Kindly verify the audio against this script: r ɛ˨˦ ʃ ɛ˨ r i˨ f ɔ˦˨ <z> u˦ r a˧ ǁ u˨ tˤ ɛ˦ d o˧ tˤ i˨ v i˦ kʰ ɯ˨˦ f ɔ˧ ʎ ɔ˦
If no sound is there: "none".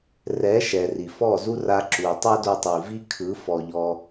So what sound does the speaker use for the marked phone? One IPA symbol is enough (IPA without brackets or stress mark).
z